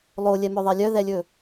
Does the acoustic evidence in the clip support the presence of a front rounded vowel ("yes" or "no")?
yes